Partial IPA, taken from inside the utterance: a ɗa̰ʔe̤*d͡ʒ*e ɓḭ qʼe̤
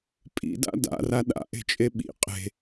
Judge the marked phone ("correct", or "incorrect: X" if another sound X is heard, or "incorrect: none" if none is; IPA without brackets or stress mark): incorrect: t͡ʃʼ